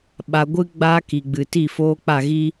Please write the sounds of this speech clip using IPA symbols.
ɓ a˧ ɡʷ ɨ˦ ɡ͡b aː˦ k i˨ ɡ͡b ɨ˨ t i˦˨ f oː˦ k͡p a˦˨ ɣ i˦

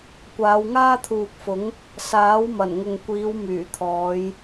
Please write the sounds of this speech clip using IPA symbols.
kʷ aː˨˧ w ŋ aː˥ t̪ʰ uː˨ k̚ f ʊ˨˥ ŋ | s aː˨˥ w m ɐ˨˩ n ŋ ʊ˨ ŋ kʷ iː˨˧ w m yː˨˩ t̪ʰ ɔː˨˧ j

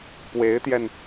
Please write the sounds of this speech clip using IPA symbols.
p w e˧˥ ɪ̯ t̪ j ɛ˧ n

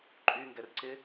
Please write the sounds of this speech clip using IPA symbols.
ǃʼ y ŋ ɡ ɛ r ǀ ɪ

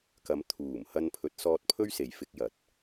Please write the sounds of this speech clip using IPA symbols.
k ɐ˨˧ m t̪ʰ uː˨˩ m h ɐ˧ n pʰ ɵ˨˥ t̚ s ɔː˧ t̚ pʰ ɵ˥ ɥ s e˨ j f ɪ˧ k̚ j ɐ˨˥ t̚

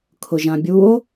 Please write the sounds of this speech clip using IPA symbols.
kʰ ʊ ʒ ã bʲ u o̯

